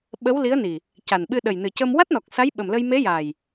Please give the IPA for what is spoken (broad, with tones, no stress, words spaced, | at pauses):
ɓə˧˥wli˧˥ə̯ni˨˩ | ca˨˩nɓɨ˧ɗə˨˩j nɨ˨˩cə˧m wa˦˥t̚nɔ˨˩k̚ sa˧˥jɓə˨˩mlə˧jme˧˥ ja˨˩j